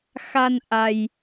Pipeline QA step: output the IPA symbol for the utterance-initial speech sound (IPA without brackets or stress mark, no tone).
x